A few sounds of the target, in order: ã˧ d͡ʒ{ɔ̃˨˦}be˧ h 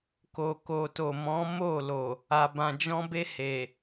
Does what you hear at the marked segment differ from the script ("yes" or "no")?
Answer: yes